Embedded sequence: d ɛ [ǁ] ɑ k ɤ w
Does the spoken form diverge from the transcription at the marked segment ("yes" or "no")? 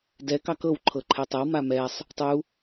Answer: yes